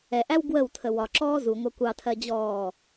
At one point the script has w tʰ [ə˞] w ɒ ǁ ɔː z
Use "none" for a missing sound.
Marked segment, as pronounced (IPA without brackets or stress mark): ə